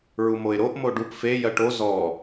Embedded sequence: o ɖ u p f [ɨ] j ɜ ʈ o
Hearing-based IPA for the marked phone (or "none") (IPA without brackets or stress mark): e